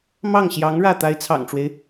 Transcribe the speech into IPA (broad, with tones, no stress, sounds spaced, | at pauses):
m ɑ˥˩ ŋ ɕ j ɑ˧˥ ŋ ɻ ä˥˩ t̪ a˧˥ ɪ̯ t͡sʰ ɑ̰˨˩ ŋ ʈ͡ʂ w e˦ ɪ̯